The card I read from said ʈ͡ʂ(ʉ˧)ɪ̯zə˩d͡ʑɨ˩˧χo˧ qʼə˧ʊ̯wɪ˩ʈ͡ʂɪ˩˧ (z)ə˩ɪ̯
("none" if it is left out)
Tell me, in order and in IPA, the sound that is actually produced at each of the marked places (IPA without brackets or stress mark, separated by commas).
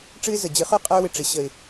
ɨ˧, ɕ